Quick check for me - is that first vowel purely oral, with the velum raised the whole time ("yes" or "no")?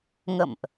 yes